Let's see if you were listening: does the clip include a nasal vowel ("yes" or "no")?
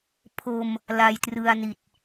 no